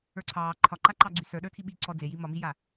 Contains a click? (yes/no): yes